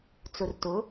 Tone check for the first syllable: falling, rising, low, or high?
low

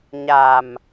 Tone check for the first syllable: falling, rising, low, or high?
low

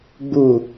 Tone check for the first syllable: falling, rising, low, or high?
low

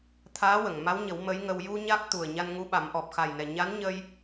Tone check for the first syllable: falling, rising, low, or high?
rising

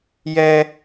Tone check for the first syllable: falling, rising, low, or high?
high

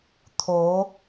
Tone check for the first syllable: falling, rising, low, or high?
rising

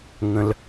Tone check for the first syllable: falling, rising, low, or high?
low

